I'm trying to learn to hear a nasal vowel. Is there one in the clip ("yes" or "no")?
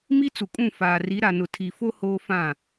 yes